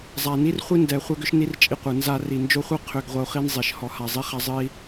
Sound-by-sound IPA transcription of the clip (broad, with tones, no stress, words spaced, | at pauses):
zˤa˨ni˦rχʷi˦ndɛ˨ χʷɛ˦ɡʏ˦ʃni˦r t͡ʃʼi˧qʷɯ˨ nza˧ri˨nd͡ʒo˦χʷɯ˦ qʰʏ˧ɡ ʁʷʌ˧u̯χi˦nzˤi˨ʃ hɔ˨ha˨zˤi˧χa˧ zˤɨ˦i̯